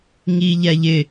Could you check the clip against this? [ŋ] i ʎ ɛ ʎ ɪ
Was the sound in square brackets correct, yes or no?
yes